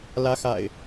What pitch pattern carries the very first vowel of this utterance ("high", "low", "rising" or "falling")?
rising